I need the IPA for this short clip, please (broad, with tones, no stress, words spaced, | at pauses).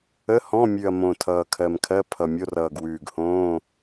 ə˧˥˧hɔ̃˧˥˧mʲʉ˨˩ɐ̯ mõ˨˩ tʰʌː˨˩kʰɜ˨˩mkʰɜ˧˥˧ pʰʌ˨˩ mʲo˧˥˧rʌː˨˩ɡwʉː˨˩ɡhõː˧˥˧